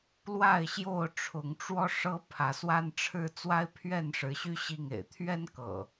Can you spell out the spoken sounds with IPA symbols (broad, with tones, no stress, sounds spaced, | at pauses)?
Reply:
l w a˥˨ ɪ̯ ɕ j o˥˨ ʊ̯ ʈ͡ʂʰ ʊ˨˦ ŋ ʈ͡ʂ w ɔ˦ ʂ ɤ˦ pʰ ä˨˦ s w a˦ n ʈ͡ʂʰ ɻ̩˦ t͡s w a˦ ɪ̯ pʰ ɥ ɛ˥˨ n ʂ ɻ̩˨˦ ɕ y˦ ɕ i˥˨ ŋ ḛ˨˩ ɪ̯ t̪ʰ ɥ ɛ˦ n k ɤ̰˨˩